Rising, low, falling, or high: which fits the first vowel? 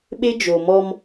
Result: high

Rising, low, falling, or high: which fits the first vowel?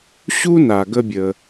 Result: high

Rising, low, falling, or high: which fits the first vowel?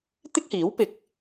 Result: high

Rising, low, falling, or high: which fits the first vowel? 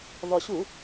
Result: low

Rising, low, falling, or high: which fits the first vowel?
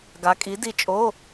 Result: rising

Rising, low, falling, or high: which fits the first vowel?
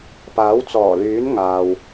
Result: rising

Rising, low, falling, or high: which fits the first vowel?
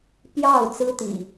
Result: falling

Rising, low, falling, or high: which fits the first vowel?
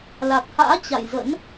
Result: low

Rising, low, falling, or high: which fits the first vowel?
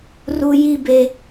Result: high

